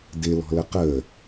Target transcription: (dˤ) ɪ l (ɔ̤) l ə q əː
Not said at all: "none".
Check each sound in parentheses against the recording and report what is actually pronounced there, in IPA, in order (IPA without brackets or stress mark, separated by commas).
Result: d, ɔ̤